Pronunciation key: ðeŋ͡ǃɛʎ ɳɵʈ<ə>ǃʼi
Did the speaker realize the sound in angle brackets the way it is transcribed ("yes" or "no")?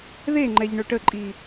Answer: yes